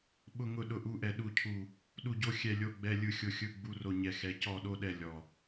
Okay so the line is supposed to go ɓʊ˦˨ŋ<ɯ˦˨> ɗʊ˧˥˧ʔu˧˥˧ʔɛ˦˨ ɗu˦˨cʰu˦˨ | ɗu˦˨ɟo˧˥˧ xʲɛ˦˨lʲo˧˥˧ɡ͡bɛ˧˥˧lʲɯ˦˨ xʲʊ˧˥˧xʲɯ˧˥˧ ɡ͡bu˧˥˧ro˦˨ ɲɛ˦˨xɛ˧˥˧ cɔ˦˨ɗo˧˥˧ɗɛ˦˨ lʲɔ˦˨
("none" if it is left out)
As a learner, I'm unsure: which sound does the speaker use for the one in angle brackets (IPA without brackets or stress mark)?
ʊ˦˨